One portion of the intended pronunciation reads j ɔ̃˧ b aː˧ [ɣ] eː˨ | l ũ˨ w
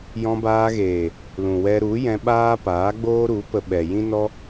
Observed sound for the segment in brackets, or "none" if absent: ɣ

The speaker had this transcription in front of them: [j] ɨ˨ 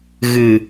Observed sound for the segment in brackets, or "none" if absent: ɣ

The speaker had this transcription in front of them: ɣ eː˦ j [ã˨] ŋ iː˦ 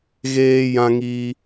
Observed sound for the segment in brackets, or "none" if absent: ã˦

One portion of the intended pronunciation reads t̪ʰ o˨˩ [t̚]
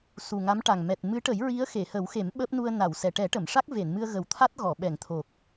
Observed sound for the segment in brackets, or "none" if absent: k̚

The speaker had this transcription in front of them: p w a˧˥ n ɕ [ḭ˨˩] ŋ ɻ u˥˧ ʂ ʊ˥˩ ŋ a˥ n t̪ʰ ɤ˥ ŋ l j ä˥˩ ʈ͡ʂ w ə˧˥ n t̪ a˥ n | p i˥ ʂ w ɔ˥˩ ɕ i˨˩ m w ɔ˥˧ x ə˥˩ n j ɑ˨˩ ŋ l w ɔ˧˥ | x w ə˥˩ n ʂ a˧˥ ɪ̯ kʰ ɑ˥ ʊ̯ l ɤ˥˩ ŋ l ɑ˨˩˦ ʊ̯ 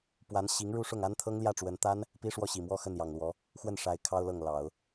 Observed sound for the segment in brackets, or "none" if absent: i˧˥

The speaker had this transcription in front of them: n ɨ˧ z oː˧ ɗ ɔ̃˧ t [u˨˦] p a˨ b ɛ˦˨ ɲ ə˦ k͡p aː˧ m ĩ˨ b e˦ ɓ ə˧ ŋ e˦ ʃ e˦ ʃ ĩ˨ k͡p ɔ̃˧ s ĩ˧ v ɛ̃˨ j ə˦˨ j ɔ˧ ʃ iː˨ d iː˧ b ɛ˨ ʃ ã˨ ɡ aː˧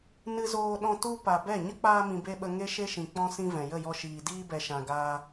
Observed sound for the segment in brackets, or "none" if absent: u˧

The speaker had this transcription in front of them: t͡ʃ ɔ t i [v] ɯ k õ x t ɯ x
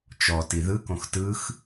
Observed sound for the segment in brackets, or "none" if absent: ð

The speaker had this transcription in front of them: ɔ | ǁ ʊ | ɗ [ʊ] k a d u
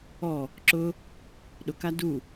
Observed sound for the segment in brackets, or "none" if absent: ʊ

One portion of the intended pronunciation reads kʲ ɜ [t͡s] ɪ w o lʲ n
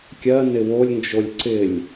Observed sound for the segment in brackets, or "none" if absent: n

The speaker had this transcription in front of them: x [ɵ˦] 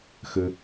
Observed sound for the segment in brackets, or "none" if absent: ɵ˦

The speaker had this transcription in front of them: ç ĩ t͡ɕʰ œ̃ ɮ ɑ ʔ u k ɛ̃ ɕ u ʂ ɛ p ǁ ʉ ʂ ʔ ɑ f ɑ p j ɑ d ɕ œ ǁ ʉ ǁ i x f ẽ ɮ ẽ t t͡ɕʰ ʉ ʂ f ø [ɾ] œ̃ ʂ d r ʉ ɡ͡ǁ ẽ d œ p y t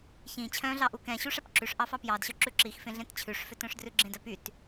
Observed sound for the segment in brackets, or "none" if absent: t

